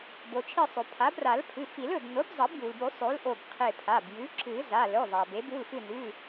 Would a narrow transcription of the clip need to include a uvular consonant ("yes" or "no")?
yes